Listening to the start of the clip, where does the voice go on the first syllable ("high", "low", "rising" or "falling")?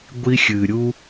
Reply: high